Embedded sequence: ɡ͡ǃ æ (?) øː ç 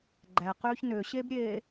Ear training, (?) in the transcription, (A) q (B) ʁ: A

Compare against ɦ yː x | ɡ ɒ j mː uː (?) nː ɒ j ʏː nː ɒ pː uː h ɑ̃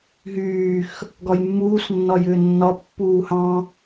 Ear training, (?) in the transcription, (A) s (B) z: A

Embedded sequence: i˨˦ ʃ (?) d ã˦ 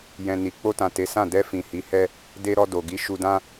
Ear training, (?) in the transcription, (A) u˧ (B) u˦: A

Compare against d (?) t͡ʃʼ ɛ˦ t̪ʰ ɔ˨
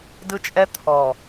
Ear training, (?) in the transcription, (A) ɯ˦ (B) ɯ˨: A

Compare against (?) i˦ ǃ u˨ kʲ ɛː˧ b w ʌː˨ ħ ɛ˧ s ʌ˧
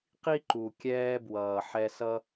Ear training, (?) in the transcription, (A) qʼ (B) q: B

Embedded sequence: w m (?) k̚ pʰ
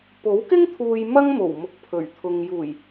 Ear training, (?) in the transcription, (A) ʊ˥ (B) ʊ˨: B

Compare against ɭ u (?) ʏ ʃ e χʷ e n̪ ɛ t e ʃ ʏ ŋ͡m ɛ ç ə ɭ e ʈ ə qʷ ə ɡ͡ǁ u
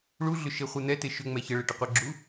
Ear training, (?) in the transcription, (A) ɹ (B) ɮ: B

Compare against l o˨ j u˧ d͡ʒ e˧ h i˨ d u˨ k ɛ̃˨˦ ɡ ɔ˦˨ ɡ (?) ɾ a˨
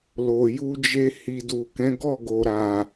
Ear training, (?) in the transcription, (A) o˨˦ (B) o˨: B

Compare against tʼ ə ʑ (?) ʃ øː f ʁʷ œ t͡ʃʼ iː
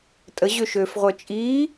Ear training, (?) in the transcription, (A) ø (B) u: A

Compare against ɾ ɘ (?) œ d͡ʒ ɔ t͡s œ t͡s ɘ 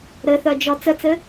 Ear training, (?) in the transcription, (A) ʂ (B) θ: B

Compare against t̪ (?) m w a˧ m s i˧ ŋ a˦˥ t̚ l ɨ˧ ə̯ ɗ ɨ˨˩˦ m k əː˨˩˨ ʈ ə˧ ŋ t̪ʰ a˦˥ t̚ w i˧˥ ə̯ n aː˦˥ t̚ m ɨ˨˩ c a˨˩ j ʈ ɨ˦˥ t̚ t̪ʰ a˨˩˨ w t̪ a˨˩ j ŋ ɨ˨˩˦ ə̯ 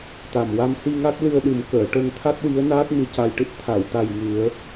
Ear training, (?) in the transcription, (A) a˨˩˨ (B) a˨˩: B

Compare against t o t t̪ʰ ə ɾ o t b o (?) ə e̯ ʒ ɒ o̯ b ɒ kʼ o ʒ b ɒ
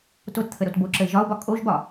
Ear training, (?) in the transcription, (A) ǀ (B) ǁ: B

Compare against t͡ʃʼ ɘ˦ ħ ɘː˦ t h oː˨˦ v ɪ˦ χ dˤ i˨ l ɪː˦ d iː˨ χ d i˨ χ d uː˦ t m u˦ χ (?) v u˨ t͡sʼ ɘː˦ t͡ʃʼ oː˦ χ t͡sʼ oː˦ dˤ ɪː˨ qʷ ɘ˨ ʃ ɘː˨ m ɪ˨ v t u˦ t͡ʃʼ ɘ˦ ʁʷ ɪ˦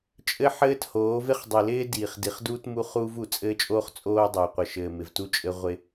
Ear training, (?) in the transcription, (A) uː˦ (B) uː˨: A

